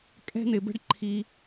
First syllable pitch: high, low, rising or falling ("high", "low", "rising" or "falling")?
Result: high